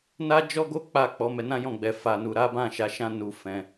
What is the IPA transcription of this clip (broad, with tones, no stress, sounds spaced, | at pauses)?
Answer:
n a˦ d͡ʒ ɔ˦ ɡ o˦ k͡p a˦˨ k͡p ɔ˨˦ m ɛ˧ n ã˦ j ɔ̃˦˨ ɡ͡b ɛ˨ f a˨ n u˨ ɾ a˨˦ b ã˦˨ ʃ a˨˦ ʃ ã˦ n u˧ f ɛ̃˧